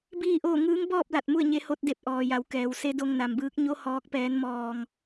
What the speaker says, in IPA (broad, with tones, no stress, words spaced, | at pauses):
biː˥˨ʔoː˥˨ ŋɯː˧˥ŋbɔː˥˨p̚la˧˩t̚ mu˥˨ə̯ɲe˧˥ho˧˥t̚de˧˩p̚ ʔɔː˩ja˩˧w kɛː˩w se˧˥do˧ŋna˩mbɯː˧˥k̚ ɲo˧˥ hɔː˧˥k̚pɛː˧˥nmɔː˧ŋ